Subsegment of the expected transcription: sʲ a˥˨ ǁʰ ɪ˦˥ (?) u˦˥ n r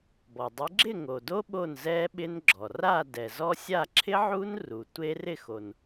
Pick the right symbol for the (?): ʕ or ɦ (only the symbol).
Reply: ʕ